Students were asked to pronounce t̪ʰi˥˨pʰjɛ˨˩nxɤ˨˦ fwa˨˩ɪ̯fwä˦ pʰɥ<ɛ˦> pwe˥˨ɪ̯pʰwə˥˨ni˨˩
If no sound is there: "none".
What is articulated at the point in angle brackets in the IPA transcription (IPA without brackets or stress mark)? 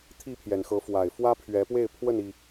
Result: ɛ˨˦